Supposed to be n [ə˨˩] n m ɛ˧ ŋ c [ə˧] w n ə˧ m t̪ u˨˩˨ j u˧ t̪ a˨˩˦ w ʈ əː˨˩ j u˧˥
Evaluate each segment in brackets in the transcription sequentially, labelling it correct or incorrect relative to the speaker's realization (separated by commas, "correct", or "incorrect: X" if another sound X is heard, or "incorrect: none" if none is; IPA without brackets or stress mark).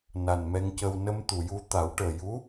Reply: incorrect: a˨˩, correct